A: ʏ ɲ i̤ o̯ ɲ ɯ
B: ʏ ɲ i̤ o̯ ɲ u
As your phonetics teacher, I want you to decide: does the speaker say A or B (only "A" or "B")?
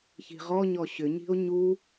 B